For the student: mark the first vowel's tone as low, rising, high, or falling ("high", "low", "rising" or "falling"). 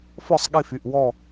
falling